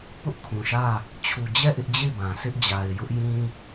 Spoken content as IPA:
p ʊ˦ ʔ kʰ ũ˨ ʃ ä˦˨ | t͡ɕʰ u˨ d͡ʑ ɛ˦˨ ʔ ɪ˦ ʔ d͡ʑ e˦˨ ɪ̯ b ã˨ s ɪ˦ ʔ d͡ʑ a˨ ɪ̯ j ʊ˦ ʔ j ĩ˦

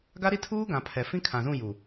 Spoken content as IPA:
ɡ a˦ ɾ i˦ tʰ uː˦ ɡ ã˨ pʰ ɛ˨ f ĩ˦ kʰ ã˨ z ũ˦˨ j u˨

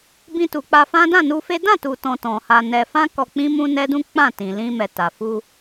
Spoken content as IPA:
b ĩ˧ t u˨ k͡p a˧ f ã˦ d ã˦˨ n u˧ f e˦ d ã˦˨ t u˨ t ɔ̃˨ t ɔ̃˨ h a˧ n ɛ˧ f ã˦ k ɔ˧ k͡p ĩ˦ m ũ˦ n ɛ˦ d ũ˦ k͡p ã˦˨ t ĩ˨ l ĩ˧ m ɛ˨ t a˨ f u˧

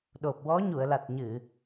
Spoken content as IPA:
ɗ o˨˩ p̚ w ɔ˧˥ ɲ u˨˩˨ ə̯ l a˨˩ t̚ ɲ ɨ˨˩˨

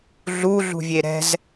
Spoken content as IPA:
ɮ u ɮ ṳ vʲ e ɾ ɛ̤ z

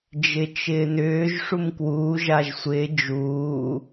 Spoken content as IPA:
d͡ʒ ɪ t͡ʃ ɪː n ʏː ʒ ʂ u m k w uː ʒ a ʒ sʷ ɪː d͡ʒ uː

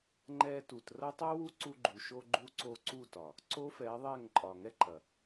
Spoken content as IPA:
ŋ͡ǃ ɛ˧ t u˨ t r ɐ˦ tˤ u˦ w u˦ ǀ u˧ ɡ͡ǃ u˨ ʃ o˧ ɡ͡ǃ u˧ ǀ o˧ ǀ u˦˨ t ɒ˨ | ǀ o˦ f ɛ˨˦ ðˤ ɛ˦˨ ŋ ǃʼ ɒ˨ ŋ ɛ˦ ǃ ɐ˨

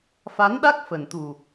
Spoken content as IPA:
f a˨˦ n ɗ a˦˥ k̚ f ə˨˩ n t̪ u˨˩

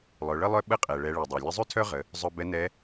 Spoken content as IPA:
lˠ œ˩˧ ɭ ə˥ lˠ œ˥ ɓ ə˧˥ qʼ ɛ˩ ɭ ɛ˩˧ ɭ ɛ˩ dˤ œ˩ lʲ ə˧˥ zˤ ʉ˥ tʰ œ˥ ʁ ə˩˧ | zˤ œ˧ b ɛ˧˥ n ɛ˧˥

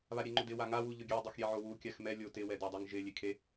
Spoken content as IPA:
β a ɾʲ e ŋ͡ǃ ʊ d ɪ w a ŋ a w u ʎ ʊ ɡʲ ɛ dˤ ʊ x ɾʲ e ʕ o w u kʲ a x m ɛ lʲ o t ɪ w ɛ d a dˤ o ŋ ʒ ɪ lʲ e kʰ e

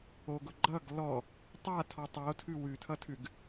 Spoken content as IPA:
o ɡ ʊ ɡ͡ǃ ʌ ɡ l ɔ | tˤ a tʰ ɔ tˤ o tʰ ʉ w ʉ tʰ ʌ tʰ ʉ ɡ

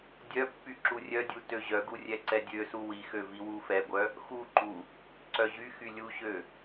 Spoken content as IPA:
dʲ œ pː y ǁ u rʲ œ dʲ u t ø ʑ œ ɡ u rʲ ɛ ǀ ɛ dʲ ø s u w i x ø v i w u f ɛ ɡʷ œ | x u ǃ u | ǀ œ ʑ y x y lʲ u ɕ ø

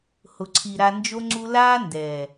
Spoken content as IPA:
h ʊ˨ ǀʰ i˨ ɾ a˧ n d͡ʒ o˦ ŋ͡ǀ u˦ l aː˦ n d ɛː˨

